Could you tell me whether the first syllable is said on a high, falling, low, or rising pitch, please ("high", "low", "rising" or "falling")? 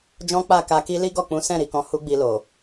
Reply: high